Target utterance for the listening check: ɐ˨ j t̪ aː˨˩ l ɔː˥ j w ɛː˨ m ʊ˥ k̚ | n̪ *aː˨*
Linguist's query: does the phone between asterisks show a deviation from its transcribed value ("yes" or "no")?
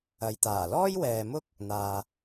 no